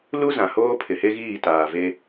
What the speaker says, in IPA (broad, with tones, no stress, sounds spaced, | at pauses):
l u˦ z ã˨ h oː˦ pʰ ɪ˨ h e˦ ɣ iː˦˨ t aː˨ v e˦